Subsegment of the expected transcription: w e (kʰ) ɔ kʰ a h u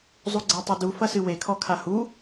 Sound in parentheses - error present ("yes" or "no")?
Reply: no